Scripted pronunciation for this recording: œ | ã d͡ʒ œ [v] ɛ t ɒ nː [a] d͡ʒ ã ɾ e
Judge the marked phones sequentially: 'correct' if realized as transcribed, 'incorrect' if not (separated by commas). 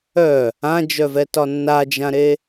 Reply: correct, correct